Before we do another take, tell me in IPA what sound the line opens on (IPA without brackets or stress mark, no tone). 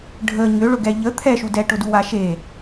ɖʱ